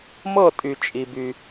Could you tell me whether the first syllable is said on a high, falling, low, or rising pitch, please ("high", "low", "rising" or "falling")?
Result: falling